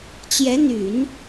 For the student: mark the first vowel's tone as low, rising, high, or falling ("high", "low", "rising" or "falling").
rising